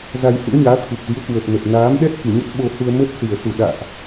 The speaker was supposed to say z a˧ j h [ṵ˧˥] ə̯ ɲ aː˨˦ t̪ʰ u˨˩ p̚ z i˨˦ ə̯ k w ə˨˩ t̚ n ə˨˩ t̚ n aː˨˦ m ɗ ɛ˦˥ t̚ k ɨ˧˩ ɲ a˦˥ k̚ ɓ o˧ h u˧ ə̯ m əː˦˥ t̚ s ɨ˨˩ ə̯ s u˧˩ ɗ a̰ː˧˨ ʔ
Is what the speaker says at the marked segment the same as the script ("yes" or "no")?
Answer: yes